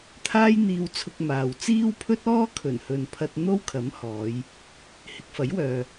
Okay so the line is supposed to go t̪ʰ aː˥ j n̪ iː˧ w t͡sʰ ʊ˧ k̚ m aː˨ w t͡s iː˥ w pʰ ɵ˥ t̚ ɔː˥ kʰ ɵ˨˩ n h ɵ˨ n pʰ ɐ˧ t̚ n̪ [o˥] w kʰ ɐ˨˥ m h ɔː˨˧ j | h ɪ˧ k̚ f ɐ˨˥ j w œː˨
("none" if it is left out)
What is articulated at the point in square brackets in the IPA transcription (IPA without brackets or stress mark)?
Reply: o˥